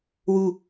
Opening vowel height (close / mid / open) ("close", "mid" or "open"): close